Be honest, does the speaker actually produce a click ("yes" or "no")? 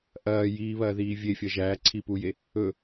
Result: yes